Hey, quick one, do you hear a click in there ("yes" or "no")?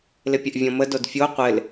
no